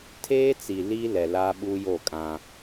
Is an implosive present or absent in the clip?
present